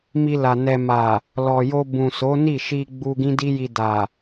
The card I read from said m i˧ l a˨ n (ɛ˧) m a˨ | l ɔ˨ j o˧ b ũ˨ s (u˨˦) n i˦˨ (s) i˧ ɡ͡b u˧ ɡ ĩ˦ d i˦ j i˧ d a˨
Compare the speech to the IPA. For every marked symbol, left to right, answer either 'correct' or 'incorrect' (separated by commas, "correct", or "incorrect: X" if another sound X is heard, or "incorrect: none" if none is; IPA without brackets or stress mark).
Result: incorrect: ɛ˨, incorrect: o˨˦, incorrect: ʃ